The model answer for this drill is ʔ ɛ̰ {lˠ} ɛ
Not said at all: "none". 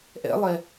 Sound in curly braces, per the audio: lˠ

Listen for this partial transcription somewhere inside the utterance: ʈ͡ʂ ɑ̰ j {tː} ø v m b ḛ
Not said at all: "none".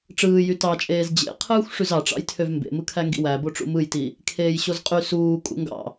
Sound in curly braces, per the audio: tʰ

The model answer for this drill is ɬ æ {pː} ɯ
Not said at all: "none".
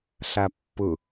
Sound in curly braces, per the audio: pː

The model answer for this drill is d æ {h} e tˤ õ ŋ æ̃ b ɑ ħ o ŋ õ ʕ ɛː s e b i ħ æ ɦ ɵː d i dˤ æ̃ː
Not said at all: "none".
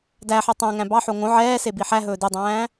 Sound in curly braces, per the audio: ħ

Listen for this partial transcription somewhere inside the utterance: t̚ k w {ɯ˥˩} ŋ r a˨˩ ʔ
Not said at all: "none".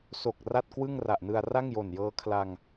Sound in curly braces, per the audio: ɯ˥˩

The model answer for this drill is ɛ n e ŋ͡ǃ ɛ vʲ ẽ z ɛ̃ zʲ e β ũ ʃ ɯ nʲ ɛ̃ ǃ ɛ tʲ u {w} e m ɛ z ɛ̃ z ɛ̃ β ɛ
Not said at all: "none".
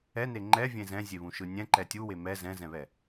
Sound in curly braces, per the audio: w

